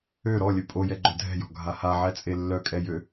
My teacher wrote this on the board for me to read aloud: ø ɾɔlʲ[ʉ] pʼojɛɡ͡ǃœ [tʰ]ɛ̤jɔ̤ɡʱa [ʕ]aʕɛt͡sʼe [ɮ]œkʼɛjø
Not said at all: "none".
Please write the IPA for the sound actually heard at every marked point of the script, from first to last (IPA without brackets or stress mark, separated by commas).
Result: ø, dʱ, h, lː